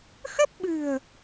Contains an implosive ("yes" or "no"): yes